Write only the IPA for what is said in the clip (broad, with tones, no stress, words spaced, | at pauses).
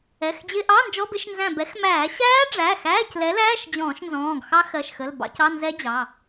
ɛ˩˧˩xd͡ʑɪ˧˥˧ ʔɑ˧˥˧nd͡ʒɔ˧˥˧bɪ˧˥˧ʃ nzæ̃˧˩bɛ˨˥xmæː˧˩˧ ɕæː˦˥ɖ͡ʐæ˩˧˩ xæː˧˥˧clɛ˨˥læː˧˥˧ʃ d͡ʑɔ̃ː˧˩˧ʃnzɔ̃ː˩˧˩ɡ xɑ˦˥xɜ˩˧˩ʃxə˩˧˩l bɑ̰˧˥˧c ɑ˧˥˧nzɛ˦˥d͡ʑɑ˩˧˩